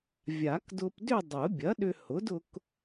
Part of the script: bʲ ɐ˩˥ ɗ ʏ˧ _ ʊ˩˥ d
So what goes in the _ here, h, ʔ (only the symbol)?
h